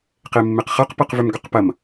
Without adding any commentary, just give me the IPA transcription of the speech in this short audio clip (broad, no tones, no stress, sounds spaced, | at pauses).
q e mː e q χ ɐ q p ɤ q v ʏ m ɡ ʏ q p ɐ m